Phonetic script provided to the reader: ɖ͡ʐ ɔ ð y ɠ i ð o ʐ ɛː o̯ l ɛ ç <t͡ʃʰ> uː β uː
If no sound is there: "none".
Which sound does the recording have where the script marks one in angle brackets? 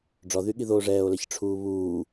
ʈ͡ʂʰ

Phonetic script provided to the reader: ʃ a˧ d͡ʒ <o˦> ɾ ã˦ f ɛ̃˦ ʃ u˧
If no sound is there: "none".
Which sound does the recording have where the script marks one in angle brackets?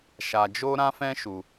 o˦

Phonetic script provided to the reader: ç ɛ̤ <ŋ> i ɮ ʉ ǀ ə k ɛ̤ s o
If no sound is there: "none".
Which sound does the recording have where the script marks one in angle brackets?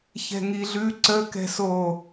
ŋ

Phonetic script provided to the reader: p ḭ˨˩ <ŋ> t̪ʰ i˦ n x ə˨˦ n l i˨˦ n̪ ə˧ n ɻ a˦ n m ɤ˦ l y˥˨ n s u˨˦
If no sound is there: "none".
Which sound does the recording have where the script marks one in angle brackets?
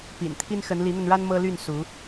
n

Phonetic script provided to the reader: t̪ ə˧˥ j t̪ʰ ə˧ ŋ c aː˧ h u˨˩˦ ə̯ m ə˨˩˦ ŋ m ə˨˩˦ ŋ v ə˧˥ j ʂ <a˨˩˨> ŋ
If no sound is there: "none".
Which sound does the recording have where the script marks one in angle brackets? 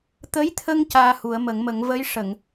ə˨˩˨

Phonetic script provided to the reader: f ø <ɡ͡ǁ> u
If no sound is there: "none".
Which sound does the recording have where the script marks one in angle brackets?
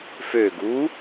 ɡ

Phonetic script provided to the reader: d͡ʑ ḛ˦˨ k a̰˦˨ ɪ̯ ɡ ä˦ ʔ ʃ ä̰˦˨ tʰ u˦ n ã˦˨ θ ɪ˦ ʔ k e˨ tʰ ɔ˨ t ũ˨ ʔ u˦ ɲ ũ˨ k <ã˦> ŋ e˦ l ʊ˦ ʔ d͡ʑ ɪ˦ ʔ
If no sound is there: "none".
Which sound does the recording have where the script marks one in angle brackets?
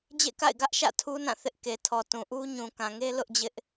ã˨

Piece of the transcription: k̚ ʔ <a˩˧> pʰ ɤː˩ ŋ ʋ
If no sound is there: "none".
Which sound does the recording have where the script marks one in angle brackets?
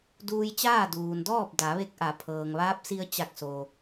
a˩˧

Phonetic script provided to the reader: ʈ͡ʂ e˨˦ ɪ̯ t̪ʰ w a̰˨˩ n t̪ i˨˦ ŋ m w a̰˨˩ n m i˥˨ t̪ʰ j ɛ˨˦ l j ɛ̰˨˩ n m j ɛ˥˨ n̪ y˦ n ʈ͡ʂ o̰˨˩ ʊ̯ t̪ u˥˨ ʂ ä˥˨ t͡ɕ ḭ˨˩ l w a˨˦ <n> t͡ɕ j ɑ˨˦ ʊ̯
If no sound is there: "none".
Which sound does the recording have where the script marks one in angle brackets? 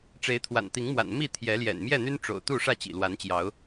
n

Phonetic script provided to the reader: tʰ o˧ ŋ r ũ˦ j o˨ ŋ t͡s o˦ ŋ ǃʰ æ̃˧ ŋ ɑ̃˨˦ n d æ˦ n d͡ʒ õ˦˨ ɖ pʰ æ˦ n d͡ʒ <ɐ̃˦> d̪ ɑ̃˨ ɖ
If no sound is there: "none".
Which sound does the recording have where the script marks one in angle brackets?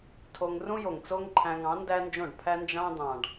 ɑ̃˦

